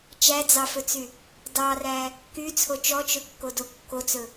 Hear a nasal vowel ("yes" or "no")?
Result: no